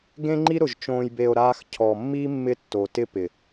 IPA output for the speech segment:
ɡẽ˦ŋ͡ǃi˦ɾʊ˨ʒ t͡ʃõː˨jbe˨o̯ ɾaː˧x cʰɔ˨mːi˦ mːɪ˦tːo˨tɪ˦pɪ˨

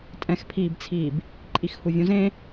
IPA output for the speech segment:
tʼɛ̃xpʰiːbt͡sʰiːb | ǃʼixhuvʲũzẽ

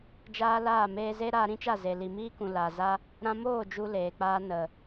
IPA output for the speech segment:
d͡ʒaː˦laː˦˨ meː˧ze˦ ɾaː˧ɾĩ˦t͡ʃa˦˨ze˨ li˨miː˦kũ˨ la˨ za˦ | ɾã˧moː˦˨ d͡ʒu˦leː˨k͡paː˦ nə˨

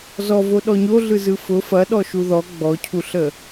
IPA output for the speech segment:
zɔvo ɗɔɲo ɮɯzɯfʊ fɐɗɔʃu ðɔ ɡ͡bɔcʰuɬə

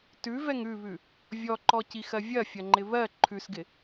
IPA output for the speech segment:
tʉvɛŋ ʉβʉ | vʲɔǃɔcixɜ vʲɐfʲɐŋ͡ǃɪ βɜ ǃʰʉsɡɪ

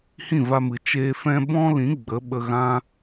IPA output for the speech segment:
hĩ˦˨va˧mɨ˨ t͡ʃeː˧fɛ̃˦ bɔ̃˦lĩ˨˦ ɡ͡bə˨˦ɓə˧ɣã˦

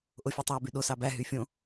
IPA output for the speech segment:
ʔofʲutˤæ byɗos ɑbæ ɦyfʲõ

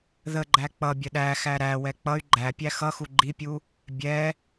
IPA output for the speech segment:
ðəɡ͡ǃæ k͡pʌ bʲəɗæxæ ɾæ wɛk͡pʌy̯ ɡ͡ǃæpʲæ xʌxu ɡ͡ǃipʲu | bʲɛ

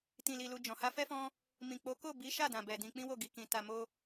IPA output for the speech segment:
tĩ˧li˧lu˧ d͡ʒɔ̃˨ha˧fɛ˦fɔ̃˦ | mĩ˨k͡po˨˦ko˦˨ bi˨˦ ʃa˦˨dã˨bɛ˨ dĩ˧k͡pĩ˦wo˦˨ ɡi˨kĩ˨ ta˧mo˦

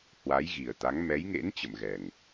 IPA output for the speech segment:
hwa˨˦jɣi˨˩ə̯t̪a˨˦ŋ mɛ˨˦jŋḛ˧˥n t͡ɕə̰˧˨mɣɛ˨˩ŋ

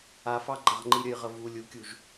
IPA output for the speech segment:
afɑɡ͡ǃaʁŋ͡ǃi ɾʲəjʁə vu lʲukʲuʒ

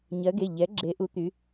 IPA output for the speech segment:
ɲɜ˨˦ɡe˩˧˩ ʎɛ˨˦ɡ͡ǁe˨˦ ʔu˨˦t̪y˨˦

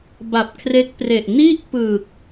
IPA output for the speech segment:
ba˨˩p̚kʰre˦˥k̚pre˨˩ʔ ni˥˩ʔpɯ˨˩k̚

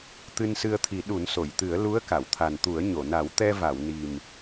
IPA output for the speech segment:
t̪ɨ˧nsɨ˧ə̯t̪ʰi˨˩˦ ɗu˨˩˦nso˨˩˨jt̪ɨ˨˩˦ə̯ lu˧˥ə̯ka˨˩˨wt̪ʰa˨˩nt̪u˨˩˦ə̯ ɲo˨˩˨ na˨˩˦wt̪ɛ˧va˨˩˨w ni˨˩m

